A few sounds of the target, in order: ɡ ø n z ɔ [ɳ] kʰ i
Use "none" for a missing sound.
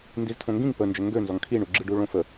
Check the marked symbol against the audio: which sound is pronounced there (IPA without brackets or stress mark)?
ŋ